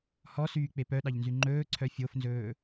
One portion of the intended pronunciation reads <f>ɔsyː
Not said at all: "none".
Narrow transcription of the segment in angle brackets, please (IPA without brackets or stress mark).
h